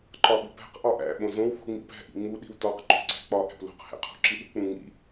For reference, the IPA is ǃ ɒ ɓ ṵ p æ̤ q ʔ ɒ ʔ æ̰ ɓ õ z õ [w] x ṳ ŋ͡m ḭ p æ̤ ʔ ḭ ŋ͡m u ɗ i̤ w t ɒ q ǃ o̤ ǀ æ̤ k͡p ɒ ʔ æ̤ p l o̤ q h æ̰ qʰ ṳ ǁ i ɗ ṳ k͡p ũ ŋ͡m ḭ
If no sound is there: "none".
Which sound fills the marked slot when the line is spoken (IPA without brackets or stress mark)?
w